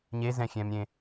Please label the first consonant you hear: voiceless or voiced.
voiced